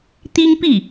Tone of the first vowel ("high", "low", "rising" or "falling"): high